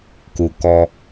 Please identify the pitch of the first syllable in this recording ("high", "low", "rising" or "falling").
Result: low